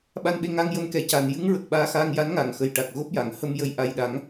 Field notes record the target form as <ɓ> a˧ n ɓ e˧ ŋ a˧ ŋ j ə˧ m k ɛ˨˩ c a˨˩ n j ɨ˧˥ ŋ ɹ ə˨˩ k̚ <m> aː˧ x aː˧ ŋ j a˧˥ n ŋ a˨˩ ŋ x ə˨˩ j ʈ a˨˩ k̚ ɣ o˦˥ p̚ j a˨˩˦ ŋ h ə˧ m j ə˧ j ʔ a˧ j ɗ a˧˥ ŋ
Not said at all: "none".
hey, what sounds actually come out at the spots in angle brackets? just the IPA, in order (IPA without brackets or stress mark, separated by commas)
ɓ, ɓ